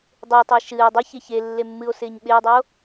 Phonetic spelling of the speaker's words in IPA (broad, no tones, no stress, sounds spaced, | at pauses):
dˤ ɪː tˤ ɨ e̯ ʃ ɨː dˤ i ç e ç e lː e mː ɨ o̯ s ɪː ɲ ɓ ɪː dˤ e o̯